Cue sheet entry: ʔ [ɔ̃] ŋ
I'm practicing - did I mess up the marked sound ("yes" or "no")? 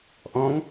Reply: no